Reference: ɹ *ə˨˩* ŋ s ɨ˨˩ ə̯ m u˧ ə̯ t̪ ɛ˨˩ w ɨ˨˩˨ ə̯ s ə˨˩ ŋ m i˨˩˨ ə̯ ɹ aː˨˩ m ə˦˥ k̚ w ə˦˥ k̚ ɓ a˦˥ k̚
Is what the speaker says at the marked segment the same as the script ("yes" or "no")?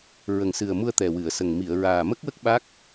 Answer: yes